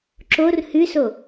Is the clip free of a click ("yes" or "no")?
no